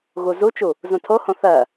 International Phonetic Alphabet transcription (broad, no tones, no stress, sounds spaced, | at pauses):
ɣ u z u t͡ʃ u | z ũ tʰ o h õ θ ɜ